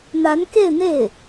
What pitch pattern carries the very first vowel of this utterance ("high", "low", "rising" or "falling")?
rising